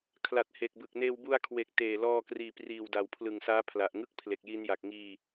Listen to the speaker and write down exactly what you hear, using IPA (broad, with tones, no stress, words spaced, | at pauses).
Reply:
kʰla˨˩t̚he˨˩k̚bɯ˨˩k̚ neː˧wbu˧a̯kʰwe˨˩k̚ teː˨˩lɔː˧kriː˨˩ priː˨˩w da˨˩wpʰlɯ˨˩ŋsaː˦˥ pʰla˨˩ʔŋɯ˥˩k̚pʰle˨˩k̚ji˧n ja˨˩k̚ŋiː˧